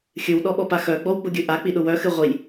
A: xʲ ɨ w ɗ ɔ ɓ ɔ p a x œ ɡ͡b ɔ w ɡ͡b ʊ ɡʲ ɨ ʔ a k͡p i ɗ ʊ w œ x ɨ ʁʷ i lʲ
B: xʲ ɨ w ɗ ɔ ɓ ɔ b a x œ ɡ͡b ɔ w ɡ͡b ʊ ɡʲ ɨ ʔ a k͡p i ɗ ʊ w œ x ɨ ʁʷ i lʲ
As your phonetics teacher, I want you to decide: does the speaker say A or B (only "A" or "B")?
A